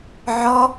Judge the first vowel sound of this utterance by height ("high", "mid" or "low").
mid